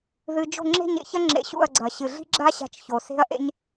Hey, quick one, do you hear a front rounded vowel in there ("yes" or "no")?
no